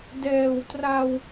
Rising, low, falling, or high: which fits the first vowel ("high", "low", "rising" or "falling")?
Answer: low